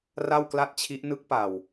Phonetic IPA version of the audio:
r a˥˩ w k l a˥˩ t̚ t͡ɕʰ i˦˥ ʔ n ɯ˦˥ k̚ p a˨˩ w

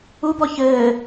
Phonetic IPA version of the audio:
u b ɔ ç ɘː

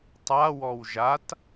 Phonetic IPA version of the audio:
tˤ a w ɔ w ʒ a t

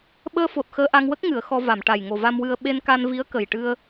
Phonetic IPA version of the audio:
ɓ əː˧ f o˨˩ t̚ x əː˧ ʔ a˧ ŋ w ə˦˥ k̚ ŋ ɨ˨˩˨ ə̯ x ɔ˧ v a˨˩˨ m ʈ a˨˩ j ŋ o˨˩ v a˧ m w ɨ˧ ə̯ ɓ e˧ n k a˧ n v i˧˥ ə̯ k ə˨˩ j ʈ ɨ˧ ə̯

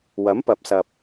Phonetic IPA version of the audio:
w ɐ˨˥ m p ɐ˨˥ p̚ s ɐ˨ p̚

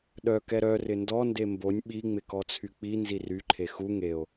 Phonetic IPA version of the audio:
ɗ œ k ɛ ɾ œ r ɪ n d ɔ n d e m b o nʲ ɓ i ŋ͡m ɪ k ɔ t͡sʰ y k͡p i n z i r y ǃʰ e x u ŋ e o̯

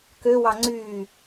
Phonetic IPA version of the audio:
k ø w ɑ ŋ͡ǀ y

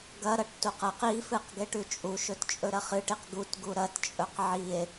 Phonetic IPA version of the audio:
ɡ ɐ ɾ ɐ ʈ t u q ɐ q i f ɨ q ɡ e ʈ ʉ t͡ʃʼ u ʃ ɵ t t͡ʃʼ ɵ ɾ ɐ χ ɨ ʈ i q ɡ u t ɡ u ɾ ɐ t t͡ʃʼ ɵ q ʕ i e̯

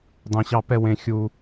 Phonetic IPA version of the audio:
dˤ ẽ˦ ɕ ɑ˥ p ɛ˥ w ẽ˦ xʲ u˥

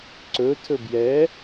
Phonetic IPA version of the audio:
ǀ ɵ tʰ ɵ b j ɛ

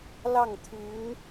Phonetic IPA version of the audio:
l ɑ˥˩ ŋ t̪ʰ y˧˥ n

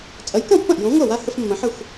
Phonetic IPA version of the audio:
t͡sʼ ɐ˨˥ j k ɐ̃˥˩ pː ɐ̃˥˩ ʔ j õ˨˥ ŋʷ a˥˩ w a˦ h ə˦ f mː ɐ̃˨˥ ħ ə˥˩ xʷ

